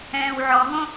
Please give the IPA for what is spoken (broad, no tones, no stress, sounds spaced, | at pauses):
ɛ̃ː w ʕ ɔ ɦ õ